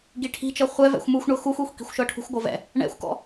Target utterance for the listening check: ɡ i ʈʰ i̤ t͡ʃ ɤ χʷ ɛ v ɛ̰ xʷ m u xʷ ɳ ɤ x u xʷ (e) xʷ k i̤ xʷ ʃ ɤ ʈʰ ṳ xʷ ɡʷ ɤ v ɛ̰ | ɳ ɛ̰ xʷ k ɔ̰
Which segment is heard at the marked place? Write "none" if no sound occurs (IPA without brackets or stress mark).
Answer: e